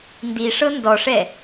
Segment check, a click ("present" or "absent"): absent